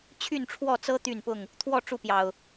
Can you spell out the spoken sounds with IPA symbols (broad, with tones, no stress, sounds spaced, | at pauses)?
t͡ɕʰ y˥˨ n ʈ͡ʂʰ w ɔ˥˨ t͡s ɤ˦ t̪ y˥˨ n p ʊ˥˨ ŋ | t̪ʰ w ɔ˥˨ ʈ͡ʂ u˥˨ p j ɑ˨˩ ʊ̯